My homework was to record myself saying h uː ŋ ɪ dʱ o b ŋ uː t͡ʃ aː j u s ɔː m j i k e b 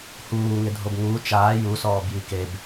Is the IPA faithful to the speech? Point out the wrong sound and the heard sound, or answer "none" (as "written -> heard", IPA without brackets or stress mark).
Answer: m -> b